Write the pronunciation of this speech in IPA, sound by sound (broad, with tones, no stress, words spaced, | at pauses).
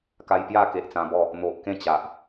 ka˧jpja˥˧ke˨ʔ t͡sã˧bɔ˥˧ | n̪o˨ʔkẽ˥˧t͡ɕa˨ʔ